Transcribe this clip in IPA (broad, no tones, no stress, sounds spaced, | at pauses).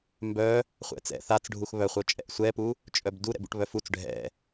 m b œ | χʷ ɛ̰ t͡s ɛ̰ θ a t͡s ɖʱ u x β œ χʷ œ t͡ʃʼ ɛ̰ ʔ sʷ ɛ p u | t͡ʃʼ œ b d u ɾ ɛ̰ b ṵ ʈ β œ f u t͡s ɖʱ ɛ̰